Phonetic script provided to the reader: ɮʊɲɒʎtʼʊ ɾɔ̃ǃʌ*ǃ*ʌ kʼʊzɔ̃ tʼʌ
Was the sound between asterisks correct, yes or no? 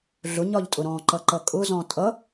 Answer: yes